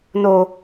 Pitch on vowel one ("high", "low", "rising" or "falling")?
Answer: high